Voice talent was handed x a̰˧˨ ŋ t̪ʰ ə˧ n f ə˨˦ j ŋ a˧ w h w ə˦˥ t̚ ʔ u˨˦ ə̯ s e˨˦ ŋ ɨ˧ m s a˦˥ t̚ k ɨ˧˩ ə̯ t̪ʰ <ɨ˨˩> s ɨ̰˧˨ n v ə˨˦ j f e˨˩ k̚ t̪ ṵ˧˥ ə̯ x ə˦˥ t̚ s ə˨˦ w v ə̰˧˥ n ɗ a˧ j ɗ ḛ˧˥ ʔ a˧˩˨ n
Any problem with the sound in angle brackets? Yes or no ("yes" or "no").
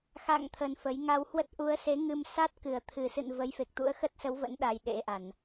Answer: no